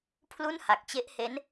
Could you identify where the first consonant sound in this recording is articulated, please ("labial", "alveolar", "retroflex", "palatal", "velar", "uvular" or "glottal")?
labial